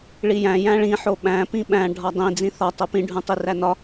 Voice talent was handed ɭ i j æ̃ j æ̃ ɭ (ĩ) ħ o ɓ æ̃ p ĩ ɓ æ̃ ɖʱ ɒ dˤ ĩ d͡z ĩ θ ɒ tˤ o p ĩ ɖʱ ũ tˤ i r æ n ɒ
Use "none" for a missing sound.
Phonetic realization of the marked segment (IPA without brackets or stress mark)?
ĩ